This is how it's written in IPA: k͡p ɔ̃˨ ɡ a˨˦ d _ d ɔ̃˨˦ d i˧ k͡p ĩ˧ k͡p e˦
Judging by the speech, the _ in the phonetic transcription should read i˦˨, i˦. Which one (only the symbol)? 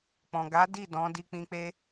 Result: i˦˨